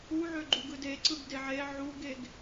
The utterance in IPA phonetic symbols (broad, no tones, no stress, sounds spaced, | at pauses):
u ʕ ø ɡ͡ǃ u ɡ ɯ d e ǀ ɯ ɡ d e ʕ e ʕ u ɡ e ɡ